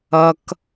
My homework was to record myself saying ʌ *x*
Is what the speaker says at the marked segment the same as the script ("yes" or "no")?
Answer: no